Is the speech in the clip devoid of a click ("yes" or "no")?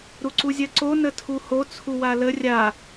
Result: no